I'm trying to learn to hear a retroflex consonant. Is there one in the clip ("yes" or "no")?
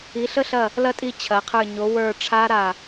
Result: yes